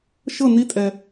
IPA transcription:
ʃ ɤ˦˨ n i˧˥ tʼ ɛ˨

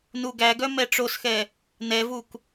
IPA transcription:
n u ɡ æ ɡ œ m ɛ ʈ͡ʂ o s x ɛ | n ɛ v u k

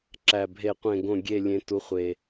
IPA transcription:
ǁ æ˨ bʱ e˨ qʷ ẽ˨ ɡ õ˨ ɡʲ e˨ lʲ ẽ˨˦ t u˨˦ χʷ e˨

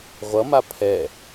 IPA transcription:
ʁʷ ʌ m a pʰ ɛ

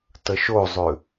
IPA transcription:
t ə ʃ o zˤ ʉ

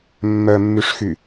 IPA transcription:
mː œ mː y ʂ x y

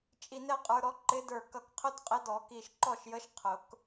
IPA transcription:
t͡ʃʼ i˧˩ n ɛ˥˩ qʼ ə˞˦ ɾ ɔ˦ ǃ ɪ˨˥ d ə˞˧˩ k ʌ˧˩ k qʰ ʊ˦ d qʼ ɪ˨˥ d ɔ˨˩˦ k i˧˩ ʃ ǃ ɔ˥˩ ʃ j ə˨˥ ʃ qʰ ʊ˨˩˦ k

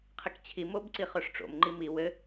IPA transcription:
qʰ ɘ k t͡ɕʰ i m o b ǀ i χ œ ʂ ʈ͡ʂ o̰ m ŋ͡ǃ i m i w ɘ

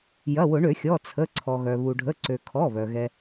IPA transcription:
j ɐ˩˧˩ w ʊ˧˩˧ ɳ ø˧˩˧ xʲ ɔ˩˧˩ t͡sʰ ə˩˧˩ ǀʰ ɔ˩ ɣ œ˩ β u˩ ɖʱ ə˩˧˩ ǀ ø˩ kʰ ɔ˩˧˩ β œ˩ ɣ ɛ˩

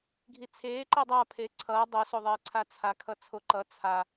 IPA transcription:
ɡʱ i t͡sʰ eː ǃ e dˤ a pʰ e ǀʰ ʌː dˤ o s o ðˤ eː ǀʰ a t͡sʰ a kʰ ʌ t͡sʰ o ǃ ʌ t͡sʰ a

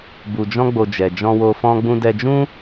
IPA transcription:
b u˧ d͡ʒ ɔ̃˦ ɡ͡b o˧ d͡ʒ ɛ˨ d͡ʒ ɔ̃˧ w o˧ f ɔ̃˦ ɡ͡b ũ˦ d ɛ˧ d͡ʒ ũ˦

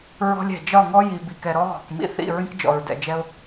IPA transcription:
ɹ ɔ̤˦ lʲ ɛ̤˨ d͡ʒ ɒ˦˨ ŋ ɔ˦ j i˨ b i˨ k ɛ˨ ɾ ɔ˦ ɣ ɔ̤˨ k m ḭ˦ θ ḭ˦˨ ɹ ĩ˦ k d͡ʒ ɔ̰˨ ɹ d ɛ̰˨ d͡ʒ ɛ˦ ʊ̯

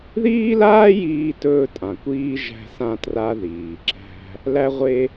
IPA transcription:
ð iː˥ l aː˥ j iː˧ t ɵː˧ tʼ ã˩ kʷ iː˧ ʒ æ̤˧ s ã˧ t r a˧ ð iː˩ ǁ æ̤˧ | l æ˧ ʁʷ e˧

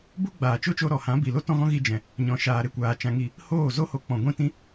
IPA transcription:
b u˦ ɡ͡b aː˨ t͡ʃ o˦ t͡ʃ o˧ ɾ ɔ˨ h ã˨˦ b i˨ l o˦ t ɔ̃˦ ɣ ɔ̃˦ ɣ i˧ d͡ʒ ɛ̃˨ | ɲ ɔ̃˨ ʃ aː˨ ɾ e˦˨ kʷ aː˨ t͡ʃ ã˧ ŋ i˦˨ | h oː˦˨ z o˦ h o˧ k͡p ɔ̃˨ ɡʷ ĩ˦˨ t ĩ˦

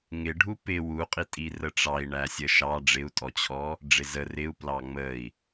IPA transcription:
ŋ ɪ ɖʱ u p ɪ w u qʼ i tʼ i r ə ʈ͡ʂ ɑ i̯ ɳ æ sʲ ə ʃ ɑ ɖ͡ʐ ɪ u̯ tʼ ɔ t͡ɕʰ ɔ | ɖ͡ʐ ɪ z ə r ɪ u̯ p l ɑ ŋ͡m ə i̯

